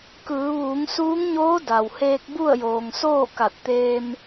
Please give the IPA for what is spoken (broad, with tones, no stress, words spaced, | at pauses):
kɯː˩˧ʋuː˩˧ŋ suː˧˥ŋɲoː˧˥ da˩wheː˧k̚ bu˥˨ə̯joː˩ŋsoː˥˨ ka˧˩t̚t̪eː˧m